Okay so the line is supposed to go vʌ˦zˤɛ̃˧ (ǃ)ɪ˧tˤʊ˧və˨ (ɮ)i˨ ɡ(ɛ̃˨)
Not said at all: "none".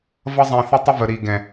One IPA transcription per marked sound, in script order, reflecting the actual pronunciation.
θ, ɾ, ɛ̃˨

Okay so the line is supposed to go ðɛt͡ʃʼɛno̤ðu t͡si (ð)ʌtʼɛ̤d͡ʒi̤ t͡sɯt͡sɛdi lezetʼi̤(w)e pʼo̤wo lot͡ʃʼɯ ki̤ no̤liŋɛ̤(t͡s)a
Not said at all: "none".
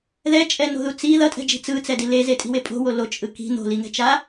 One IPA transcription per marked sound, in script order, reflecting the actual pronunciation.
ð, w, t͡ʃ

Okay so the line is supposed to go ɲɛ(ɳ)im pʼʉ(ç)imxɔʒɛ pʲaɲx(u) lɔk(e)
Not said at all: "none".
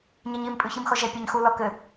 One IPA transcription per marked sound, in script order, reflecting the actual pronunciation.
ɲ, ç, u, ɘ

